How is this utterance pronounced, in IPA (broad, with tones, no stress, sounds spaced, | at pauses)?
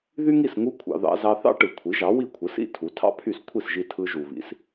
ð y˥ ŋ i˥˩ s ŋ u˥ kʷʰ ɑ̰˧ ð ɑ̰˧ z ɑ˧ θ ɑ̰˥ ʈ ɯ˩ kʷʰ i˩˥ ʒ ɑ˩˥ w i˥˩ kʷʰ ɯ˩˥ s ḭ˥ tʰ u˩˥ tʰ ɑ̰˥ pʰ y˥˩ s kʷʰ i˥˩ s ʒ i˧ tʰ ɯ˧ ʒ u˩ β ḭ˩˥ s